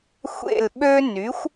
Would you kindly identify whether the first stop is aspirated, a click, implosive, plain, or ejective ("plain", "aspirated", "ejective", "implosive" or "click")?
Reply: implosive